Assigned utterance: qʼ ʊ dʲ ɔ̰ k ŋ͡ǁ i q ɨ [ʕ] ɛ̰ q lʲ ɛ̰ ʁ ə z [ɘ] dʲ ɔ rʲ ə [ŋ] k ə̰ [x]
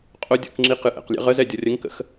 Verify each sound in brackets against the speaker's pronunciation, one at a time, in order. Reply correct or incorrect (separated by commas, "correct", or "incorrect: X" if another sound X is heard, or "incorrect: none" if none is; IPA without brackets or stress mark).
incorrect: ʔ, incorrect: ɛ, correct, correct